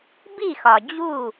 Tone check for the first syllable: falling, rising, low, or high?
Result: falling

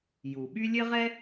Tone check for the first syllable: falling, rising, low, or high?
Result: low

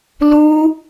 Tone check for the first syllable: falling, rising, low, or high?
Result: high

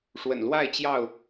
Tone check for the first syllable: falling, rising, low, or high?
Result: low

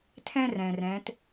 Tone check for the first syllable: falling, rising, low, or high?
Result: high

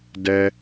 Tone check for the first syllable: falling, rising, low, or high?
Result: high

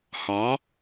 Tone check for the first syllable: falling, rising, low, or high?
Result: rising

